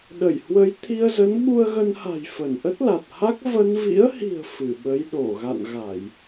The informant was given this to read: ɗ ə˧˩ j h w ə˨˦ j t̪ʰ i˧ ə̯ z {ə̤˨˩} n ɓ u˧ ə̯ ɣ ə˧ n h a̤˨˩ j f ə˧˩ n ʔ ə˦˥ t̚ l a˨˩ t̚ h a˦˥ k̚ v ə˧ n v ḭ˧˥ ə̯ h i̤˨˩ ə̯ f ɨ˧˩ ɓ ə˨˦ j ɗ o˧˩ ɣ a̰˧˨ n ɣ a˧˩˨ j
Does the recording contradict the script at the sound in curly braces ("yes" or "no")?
yes